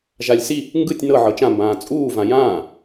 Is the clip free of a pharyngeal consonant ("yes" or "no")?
no